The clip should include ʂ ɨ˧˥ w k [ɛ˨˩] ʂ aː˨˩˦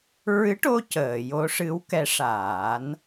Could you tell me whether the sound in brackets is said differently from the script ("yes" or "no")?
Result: yes